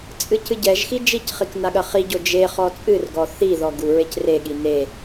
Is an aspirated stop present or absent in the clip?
absent